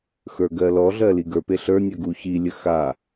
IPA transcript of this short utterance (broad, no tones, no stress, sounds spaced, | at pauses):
x ə˞ ɡ ɜ l ɔ ɮ ɜ l i ɡ ə˞ p e ɬ ə˞ nʲ ɜ ɡ u ç i lʲ ə x a